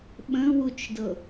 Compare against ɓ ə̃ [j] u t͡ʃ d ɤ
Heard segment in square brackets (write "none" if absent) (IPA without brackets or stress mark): w